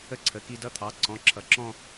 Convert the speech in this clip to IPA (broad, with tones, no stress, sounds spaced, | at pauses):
ə˥˧ ǀʰ ə˩˧˩ k i˥˧ d ʌ˥˧ t̪ʰ ɑ˩˧˩ ǀ ɔ̃˩˧˩ ǁʰ ʌ˩˧˩ ǁ ɔ̃˥˧